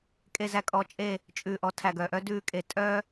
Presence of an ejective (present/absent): present